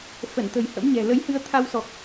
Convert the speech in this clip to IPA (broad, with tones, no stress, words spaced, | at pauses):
fə˧˩nt̪ə̤˨˩j hə̰˧˥mɲɛ̤˨˩ lə˨˦jhɨ˧ə̯ t̪ʰa˧wsɔ˨˩k̚